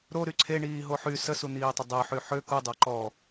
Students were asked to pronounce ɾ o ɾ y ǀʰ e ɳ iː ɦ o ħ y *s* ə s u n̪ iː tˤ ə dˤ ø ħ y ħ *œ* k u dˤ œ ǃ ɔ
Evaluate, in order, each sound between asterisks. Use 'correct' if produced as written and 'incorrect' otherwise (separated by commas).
correct, incorrect